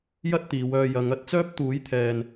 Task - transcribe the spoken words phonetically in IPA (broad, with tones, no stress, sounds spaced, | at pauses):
j ɐ˥ t̚ t̪ iː˨˧ w œː˧ j ɐ˨˧ ŋ ɐ˨˥ t̚ t͡s œː˥ p̚ t̪ uː˨˥ j t̪ʰ ɛː˨ n